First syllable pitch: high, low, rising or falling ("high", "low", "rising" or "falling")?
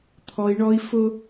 high